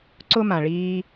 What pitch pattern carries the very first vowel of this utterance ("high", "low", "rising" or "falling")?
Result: high